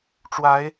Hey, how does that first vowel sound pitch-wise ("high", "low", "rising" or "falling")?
rising